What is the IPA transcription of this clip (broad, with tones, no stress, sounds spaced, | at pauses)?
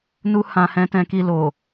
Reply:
n u˧ h ã˨ h ɛ̃˨˦ t ɛ̃˧ k i˧ l o˨